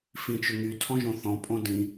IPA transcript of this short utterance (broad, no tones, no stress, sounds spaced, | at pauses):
f ĩ t͡ʃ ʏ ŋ y tʰ ɔ̃ ʒ õ θ ɔ̃ pʼ õ d ĩ